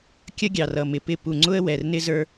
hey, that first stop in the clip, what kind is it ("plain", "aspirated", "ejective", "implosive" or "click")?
plain